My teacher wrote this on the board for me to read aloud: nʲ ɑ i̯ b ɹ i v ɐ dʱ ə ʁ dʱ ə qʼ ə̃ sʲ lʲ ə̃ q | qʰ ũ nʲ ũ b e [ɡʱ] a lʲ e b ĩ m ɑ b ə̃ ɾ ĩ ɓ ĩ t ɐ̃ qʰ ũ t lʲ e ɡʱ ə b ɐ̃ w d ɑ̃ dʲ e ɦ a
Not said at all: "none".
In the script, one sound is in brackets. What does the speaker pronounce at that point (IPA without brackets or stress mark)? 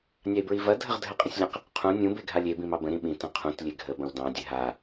ɡʱ